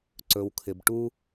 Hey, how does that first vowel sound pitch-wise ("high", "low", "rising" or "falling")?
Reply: low